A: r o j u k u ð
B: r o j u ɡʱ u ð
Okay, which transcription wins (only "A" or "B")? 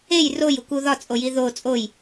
A